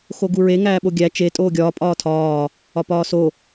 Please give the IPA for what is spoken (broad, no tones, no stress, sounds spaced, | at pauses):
x o ɡ u ɹ e ŋ æː ɓ o ɡʲ æ t͡ʃ e tʼ oː ɡʲ ɒː pʼ ɒː tʰ ɒː | ɒ p ɒː s o